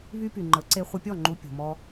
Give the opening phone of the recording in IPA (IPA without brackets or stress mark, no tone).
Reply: β